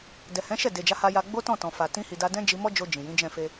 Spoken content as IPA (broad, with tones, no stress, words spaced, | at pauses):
dɛ˨hɛ̃˨˦ʃɛ˦˨ de˨d͡ʒa˨˦ha˧ja˧ ɡ͡bo˦tɔ̃˦˨tɔ̃˨fa˨ tĩ˧hi˨da˧ dɛ̃˦d͡ʒi˧mɔ˦d͡ʒo˧ d͡ʒĩ˨jĩ˨˦d͡ʒɛ̃˦˨ fe˧